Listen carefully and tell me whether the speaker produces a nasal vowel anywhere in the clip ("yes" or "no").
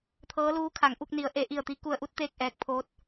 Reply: no